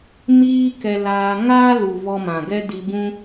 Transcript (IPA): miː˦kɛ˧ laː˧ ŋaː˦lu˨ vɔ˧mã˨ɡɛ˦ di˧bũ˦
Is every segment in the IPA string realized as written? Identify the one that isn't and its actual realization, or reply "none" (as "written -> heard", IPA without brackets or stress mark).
none